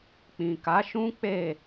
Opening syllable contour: low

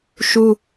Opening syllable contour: high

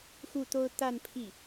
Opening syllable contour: falling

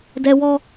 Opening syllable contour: high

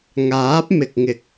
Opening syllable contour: rising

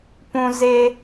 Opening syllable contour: high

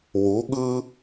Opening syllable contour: rising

